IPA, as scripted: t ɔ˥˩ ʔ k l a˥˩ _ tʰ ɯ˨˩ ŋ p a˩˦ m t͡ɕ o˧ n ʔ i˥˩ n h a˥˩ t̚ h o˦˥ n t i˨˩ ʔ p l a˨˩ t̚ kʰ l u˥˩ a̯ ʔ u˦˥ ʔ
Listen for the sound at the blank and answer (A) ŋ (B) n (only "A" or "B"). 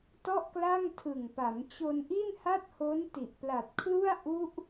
A